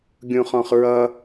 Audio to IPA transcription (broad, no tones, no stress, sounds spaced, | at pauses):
ɡʲ ũ χ ɔ̃ χ ɹ ʌ